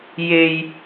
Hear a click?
no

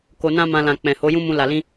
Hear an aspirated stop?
no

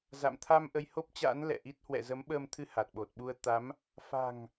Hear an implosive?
yes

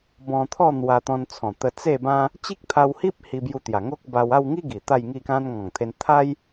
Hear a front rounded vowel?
no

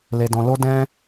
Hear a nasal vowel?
yes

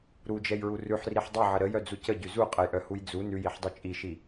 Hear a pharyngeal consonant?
yes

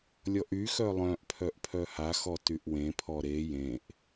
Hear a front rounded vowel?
yes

